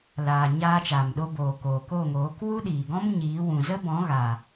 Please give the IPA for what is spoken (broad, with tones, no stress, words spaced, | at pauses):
laː˨ ɲaː˧t͡ʃaː˨mɗo˧boː˨ koː˨ko˦˨ŋoː˨˦k wu˦ɗiː˨ɡɔ̃˦m ɲiː˨˦ wũ˨zə˦bɔ̃˨˦ɣa˨